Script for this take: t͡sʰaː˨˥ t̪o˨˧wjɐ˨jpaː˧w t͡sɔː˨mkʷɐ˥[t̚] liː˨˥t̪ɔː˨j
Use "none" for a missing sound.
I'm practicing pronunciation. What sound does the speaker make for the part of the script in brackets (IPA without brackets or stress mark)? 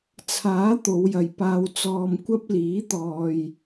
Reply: p̚